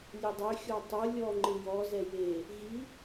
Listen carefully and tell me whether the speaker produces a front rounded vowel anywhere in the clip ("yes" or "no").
yes